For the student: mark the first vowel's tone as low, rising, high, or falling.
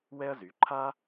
high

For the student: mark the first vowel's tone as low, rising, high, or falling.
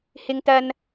high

